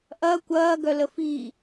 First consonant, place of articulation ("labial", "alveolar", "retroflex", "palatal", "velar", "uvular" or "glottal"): glottal